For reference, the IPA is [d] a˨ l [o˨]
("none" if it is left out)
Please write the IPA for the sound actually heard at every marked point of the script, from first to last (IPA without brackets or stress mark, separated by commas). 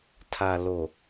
tʰ, o˨